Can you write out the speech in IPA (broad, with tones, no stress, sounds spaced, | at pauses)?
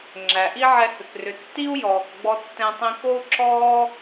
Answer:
ŋ͡ǁ æ˩ ʔ i˥ ʕ ɛ˧ h ʏ˩ k r ʏ˩ tː i˥ u̯ j ɔː˩ k ɡ͡b ɔ˧ tː ɛ̃˧ tˤ ĩ˧ k o˥ u̯ ǁʰ ɔː˥